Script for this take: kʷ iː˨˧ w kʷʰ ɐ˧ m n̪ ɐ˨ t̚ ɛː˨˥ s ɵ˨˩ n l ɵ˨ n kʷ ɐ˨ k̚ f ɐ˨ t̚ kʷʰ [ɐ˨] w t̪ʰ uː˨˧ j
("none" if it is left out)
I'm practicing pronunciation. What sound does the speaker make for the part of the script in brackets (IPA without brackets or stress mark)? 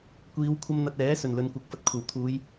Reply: ɐ˨˩